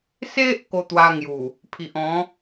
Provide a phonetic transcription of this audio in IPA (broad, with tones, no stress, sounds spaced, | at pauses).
s e˦ ʔ k o˧ t̪ w a˧ ŋ j u˨˩ | pʰ i˨ ʔ ɔ̃˨˦